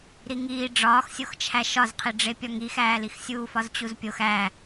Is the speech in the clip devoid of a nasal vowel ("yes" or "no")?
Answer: yes